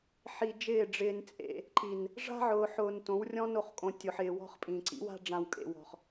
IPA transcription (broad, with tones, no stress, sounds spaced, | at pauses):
ħ i˨ d͡ʒ ɪː˦˨ ɖ͡ʐ ɪː˦ n t͡sʼ ḛ˦ | ǃ i˨ n | ʐ a̤˦ ʕ ʊː˨ ħ ʊː˨ n t õ˨˦ w rʲ ɔ̃˦ n o˨ χ kʼ õ˨ tʲ ʊ˨ ħ ɪː˨ w ɔ̤˦ χ pʼ ĩ˨ ǀ ḭ˦ w a̤˦ ɖ͡ʐ ã˨ w kʼ ḛ˨ w ɔ̤˨ χ